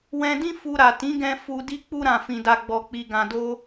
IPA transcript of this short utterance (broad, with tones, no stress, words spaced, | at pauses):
wɛ̃˧dĩ˦ fu˧ ɾa˨tĩ˨˦ɡɛ̃˧ fu˧di˦ k͡pu˧ɾã˨fĩ˨da˨ ɡ͡bɔ˨k͡pi˨ɡã˨ do˧